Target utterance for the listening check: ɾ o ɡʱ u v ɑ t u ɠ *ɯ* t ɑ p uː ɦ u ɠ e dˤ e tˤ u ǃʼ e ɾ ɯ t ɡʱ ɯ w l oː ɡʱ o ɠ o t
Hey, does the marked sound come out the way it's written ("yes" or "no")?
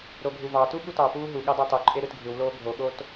no